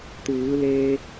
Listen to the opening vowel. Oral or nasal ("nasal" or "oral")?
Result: oral